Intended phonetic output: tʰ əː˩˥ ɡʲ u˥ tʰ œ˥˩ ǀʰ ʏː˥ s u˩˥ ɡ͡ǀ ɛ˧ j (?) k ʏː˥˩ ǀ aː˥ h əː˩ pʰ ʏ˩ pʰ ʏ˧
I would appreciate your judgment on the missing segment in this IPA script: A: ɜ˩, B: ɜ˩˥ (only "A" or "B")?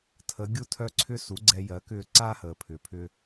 B